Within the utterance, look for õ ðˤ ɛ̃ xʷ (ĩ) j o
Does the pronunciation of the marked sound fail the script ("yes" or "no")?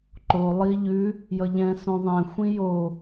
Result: no